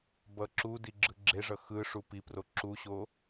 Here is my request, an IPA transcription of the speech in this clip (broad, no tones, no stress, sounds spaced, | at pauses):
b ʌ ǁ u d i ɡ͡ǁ ɯ ɡ͡ǁ e ʐ ʌ x ɯ ʂ u p i p r o ǁ u ɕ o